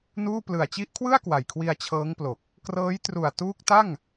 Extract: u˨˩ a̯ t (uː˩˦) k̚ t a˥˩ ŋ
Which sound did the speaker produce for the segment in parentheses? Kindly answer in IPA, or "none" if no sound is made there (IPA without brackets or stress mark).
uː˦˥